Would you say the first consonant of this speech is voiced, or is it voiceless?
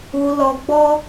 voiced